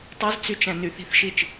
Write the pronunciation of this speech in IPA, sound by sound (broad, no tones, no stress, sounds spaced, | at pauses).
tˤ u z t͡s y t͡ʃ æ̃ n y θ i̤ θ ʃ i t͡ʃ